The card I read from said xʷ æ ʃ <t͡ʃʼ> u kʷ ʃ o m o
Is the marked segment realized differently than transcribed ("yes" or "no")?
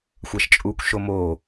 no